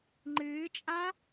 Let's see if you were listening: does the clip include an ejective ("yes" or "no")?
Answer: yes